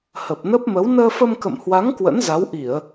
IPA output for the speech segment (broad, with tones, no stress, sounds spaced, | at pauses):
h ə˨˩ p̚ n ə˦˥ p̚ m ə˨˦ w n əː˧ f ə˧ m k ə̰˧˨ m h w a˨˦ ŋ k w ə̰˧˥ n z a˨˦ w ʔ i˧˩˨ ə̯